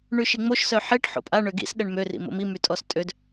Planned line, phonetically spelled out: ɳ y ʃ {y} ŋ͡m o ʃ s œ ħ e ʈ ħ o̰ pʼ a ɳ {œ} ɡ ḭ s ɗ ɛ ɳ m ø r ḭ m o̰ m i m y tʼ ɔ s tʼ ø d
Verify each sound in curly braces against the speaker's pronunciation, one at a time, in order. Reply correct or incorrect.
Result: incorrect, incorrect

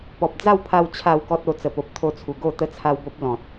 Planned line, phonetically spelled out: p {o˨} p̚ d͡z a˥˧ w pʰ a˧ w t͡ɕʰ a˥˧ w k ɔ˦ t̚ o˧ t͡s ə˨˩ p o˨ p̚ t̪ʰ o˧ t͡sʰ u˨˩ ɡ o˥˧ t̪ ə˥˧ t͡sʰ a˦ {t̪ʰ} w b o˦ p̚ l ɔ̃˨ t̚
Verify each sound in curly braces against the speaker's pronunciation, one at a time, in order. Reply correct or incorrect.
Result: incorrect, incorrect

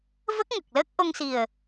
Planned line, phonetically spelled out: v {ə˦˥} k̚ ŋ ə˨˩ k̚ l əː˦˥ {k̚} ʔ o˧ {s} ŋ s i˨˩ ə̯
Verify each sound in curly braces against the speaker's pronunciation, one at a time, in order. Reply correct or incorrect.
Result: correct, correct, incorrect

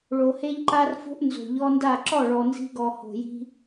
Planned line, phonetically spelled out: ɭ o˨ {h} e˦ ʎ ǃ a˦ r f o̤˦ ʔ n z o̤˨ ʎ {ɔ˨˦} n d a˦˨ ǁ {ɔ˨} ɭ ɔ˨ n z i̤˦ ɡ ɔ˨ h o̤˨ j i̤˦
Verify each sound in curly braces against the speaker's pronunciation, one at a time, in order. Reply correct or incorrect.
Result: correct, incorrect, incorrect

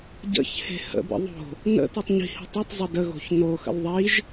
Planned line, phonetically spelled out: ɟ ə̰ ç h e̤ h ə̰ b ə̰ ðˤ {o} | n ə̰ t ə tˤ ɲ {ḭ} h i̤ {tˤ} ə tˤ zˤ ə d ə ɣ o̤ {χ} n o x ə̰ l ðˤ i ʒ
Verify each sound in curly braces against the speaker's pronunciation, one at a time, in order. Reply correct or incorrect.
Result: incorrect, incorrect, correct, incorrect

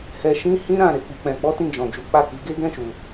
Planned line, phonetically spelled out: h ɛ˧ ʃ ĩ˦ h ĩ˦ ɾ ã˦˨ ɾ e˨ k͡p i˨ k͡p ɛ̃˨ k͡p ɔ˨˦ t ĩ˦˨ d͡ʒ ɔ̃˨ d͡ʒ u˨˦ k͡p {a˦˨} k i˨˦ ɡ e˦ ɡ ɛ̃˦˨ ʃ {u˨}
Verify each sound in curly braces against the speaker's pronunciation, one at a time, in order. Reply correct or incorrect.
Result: correct, correct

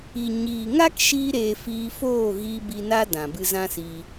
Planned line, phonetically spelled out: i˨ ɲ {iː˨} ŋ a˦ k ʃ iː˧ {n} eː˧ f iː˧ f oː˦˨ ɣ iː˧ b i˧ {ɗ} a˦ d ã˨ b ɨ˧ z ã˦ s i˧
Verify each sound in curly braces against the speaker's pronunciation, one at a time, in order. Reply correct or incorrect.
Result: correct, incorrect, incorrect

